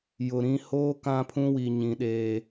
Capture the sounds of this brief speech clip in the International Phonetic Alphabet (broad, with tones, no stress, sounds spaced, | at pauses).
j ʊ˨ ɾ ĩ˦ h oː˦ k ã˦ pʰ ũ˦ w i˨ ɲ ĩ˨ ɗ eː˨